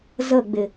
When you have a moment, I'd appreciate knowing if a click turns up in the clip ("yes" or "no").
no